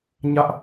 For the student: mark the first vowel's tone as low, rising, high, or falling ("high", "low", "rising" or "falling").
high